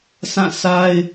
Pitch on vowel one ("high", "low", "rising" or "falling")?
falling